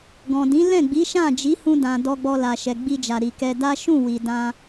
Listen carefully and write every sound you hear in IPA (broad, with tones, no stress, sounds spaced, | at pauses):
ɡ ɔ̃˨ d ĩ˨˦ l ɛ̃˦˨ ɡ͡b i˨˦ ʃ ã˦˨ d͡ʒ i˨˦ h ũ˧ d ã˨ d ɔ˧ ɡ͡b ɔ˧ l a˨ ʃ ɛ˨ ɡ͡b i˧ d͡ʒ a˨ ɾ i˨ k ɛ˧ d a˦ ʃ ũ˦˨ w i˨ d ã˧